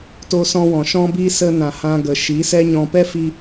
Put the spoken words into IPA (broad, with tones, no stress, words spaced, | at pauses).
to˧sɔ̃˧wɔ̃˨ ʃɔ̃˦bi˦ sə˧ nã˨hã˧ ɡə˨ ʃi˨˦sɛ˦ɲɔ̃˧ pɛ˦fi˧